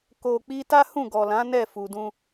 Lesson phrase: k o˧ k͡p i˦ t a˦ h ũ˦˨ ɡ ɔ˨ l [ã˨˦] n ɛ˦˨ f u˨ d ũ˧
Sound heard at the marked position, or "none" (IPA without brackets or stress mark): ã˨˦